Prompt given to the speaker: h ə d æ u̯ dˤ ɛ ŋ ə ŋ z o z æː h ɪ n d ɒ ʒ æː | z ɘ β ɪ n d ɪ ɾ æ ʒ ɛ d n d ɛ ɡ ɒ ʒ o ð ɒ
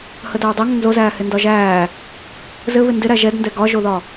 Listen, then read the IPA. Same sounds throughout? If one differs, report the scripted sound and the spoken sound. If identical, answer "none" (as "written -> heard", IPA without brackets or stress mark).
none